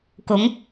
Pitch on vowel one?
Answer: rising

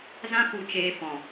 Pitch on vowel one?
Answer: high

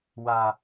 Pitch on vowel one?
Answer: low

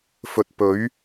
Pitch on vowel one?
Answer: low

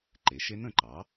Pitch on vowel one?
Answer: rising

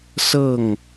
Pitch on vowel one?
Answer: falling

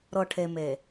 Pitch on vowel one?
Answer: low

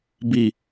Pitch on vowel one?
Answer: low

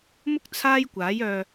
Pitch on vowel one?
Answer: high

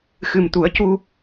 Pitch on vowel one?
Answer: low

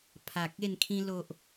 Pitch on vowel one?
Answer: low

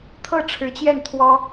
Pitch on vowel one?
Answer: falling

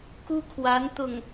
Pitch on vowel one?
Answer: high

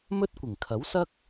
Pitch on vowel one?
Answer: high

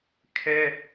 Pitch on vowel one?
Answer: high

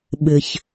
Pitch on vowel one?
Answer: low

